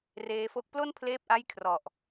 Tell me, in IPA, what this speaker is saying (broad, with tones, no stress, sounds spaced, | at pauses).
r eː˦˥ f o˥˩ k̚ p l o˥˩ n pʰ l eː˦˥ p̚ ʔ a˦˥ j kʰ r ɔ˨˩ ʔ